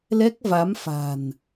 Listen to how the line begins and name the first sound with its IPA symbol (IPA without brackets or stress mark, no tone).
l